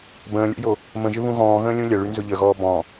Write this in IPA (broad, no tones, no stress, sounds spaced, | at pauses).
b ə̃ː lʲ o̰ j o | m ə̃ ʒ ɪ β ũ ɣ ɔ̃ː ɣ ə̃ː lʲ ũ lʲ ɐ ɭ y n z ʊ ʎ ə ɣ ɔː b ɔ̃